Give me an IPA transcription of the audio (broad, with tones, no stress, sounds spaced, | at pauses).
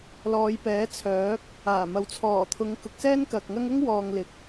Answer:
l ɔː˨˧ j p ɛː˨˥ t͡sʰ œː˨˥ k̚ | aː˨˩ m ɐ˨˥ w t͡sʰ ɔː˨˩ t̪ʰ ʊ˨˧ ŋ k ʊ˨ k̚ s ɛː˥ n k ɐ˨ k̚ ŋ ɐ˥ ŋ ʊ˥ ŋ w ɔː˨ ŋ l ɪ˨ k̚